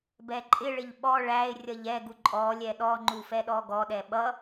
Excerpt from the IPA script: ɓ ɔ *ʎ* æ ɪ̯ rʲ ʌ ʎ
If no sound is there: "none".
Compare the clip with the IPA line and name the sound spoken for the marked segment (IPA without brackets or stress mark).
ɭ